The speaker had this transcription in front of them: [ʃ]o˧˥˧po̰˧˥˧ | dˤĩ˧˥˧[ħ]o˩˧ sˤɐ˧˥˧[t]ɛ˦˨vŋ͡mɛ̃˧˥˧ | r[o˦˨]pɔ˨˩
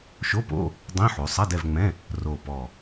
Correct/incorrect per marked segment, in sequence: correct, correct, incorrect: d, incorrect: o˨˩

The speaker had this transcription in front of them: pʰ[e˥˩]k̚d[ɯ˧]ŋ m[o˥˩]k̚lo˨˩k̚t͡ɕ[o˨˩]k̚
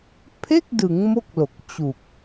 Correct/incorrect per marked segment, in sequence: correct, incorrect: ɯ˩˦, correct, incorrect: u˨˩

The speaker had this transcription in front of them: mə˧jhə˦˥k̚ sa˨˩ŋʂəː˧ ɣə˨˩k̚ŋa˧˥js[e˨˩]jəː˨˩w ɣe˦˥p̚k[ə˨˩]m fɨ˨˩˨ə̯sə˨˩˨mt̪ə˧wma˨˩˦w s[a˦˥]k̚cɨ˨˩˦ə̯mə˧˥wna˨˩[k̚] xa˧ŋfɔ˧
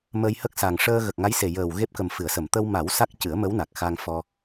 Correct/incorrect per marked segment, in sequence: correct, correct, correct, correct

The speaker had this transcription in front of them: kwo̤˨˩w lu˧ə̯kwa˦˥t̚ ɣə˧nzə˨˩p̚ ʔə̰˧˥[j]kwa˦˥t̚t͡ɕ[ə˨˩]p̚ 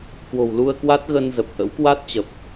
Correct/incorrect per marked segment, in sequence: incorrect: w, correct

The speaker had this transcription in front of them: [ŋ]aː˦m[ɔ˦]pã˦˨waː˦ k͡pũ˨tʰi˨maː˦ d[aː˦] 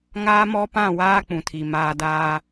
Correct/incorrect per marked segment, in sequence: correct, correct, correct

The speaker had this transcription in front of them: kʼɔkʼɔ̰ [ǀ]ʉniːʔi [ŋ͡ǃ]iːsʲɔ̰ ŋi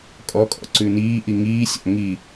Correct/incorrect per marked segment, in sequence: correct, incorrect: ŋ

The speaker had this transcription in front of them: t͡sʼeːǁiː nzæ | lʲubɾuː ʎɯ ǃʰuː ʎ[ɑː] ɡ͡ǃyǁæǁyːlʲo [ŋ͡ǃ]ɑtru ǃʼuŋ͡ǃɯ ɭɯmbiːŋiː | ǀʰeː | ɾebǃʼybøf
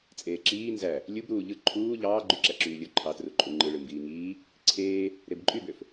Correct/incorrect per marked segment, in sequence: correct, incorrect: ǃʰ

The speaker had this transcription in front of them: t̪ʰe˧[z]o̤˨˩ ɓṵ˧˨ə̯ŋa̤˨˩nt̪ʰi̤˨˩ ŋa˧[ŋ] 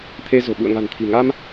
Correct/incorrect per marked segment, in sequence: correct, incorrect: m

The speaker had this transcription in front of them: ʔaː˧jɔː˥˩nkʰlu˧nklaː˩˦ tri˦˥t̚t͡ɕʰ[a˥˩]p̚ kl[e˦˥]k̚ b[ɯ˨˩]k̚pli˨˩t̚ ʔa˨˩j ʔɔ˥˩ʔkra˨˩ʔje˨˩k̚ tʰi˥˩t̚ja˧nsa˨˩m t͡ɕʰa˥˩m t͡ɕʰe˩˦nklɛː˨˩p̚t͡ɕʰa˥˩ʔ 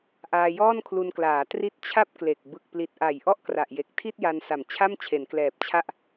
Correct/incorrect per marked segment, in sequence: correct, incorrect: e˨˩, correct

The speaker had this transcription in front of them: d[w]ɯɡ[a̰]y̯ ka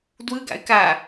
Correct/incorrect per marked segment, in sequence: correct, correct

